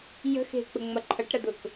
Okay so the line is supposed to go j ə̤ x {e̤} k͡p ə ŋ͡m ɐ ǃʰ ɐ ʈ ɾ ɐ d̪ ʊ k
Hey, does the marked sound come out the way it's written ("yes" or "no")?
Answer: yes